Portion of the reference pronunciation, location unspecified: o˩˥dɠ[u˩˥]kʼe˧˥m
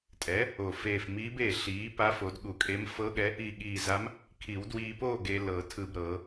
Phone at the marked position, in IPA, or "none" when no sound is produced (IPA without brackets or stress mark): u˨˩˦